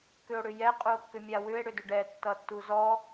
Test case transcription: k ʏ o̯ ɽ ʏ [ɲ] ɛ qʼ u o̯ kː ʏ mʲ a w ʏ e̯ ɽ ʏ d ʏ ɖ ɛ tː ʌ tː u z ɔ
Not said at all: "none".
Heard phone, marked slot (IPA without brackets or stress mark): j